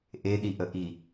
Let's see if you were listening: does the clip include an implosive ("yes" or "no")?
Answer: yes